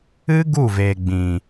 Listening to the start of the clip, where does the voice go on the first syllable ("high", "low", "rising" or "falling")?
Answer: high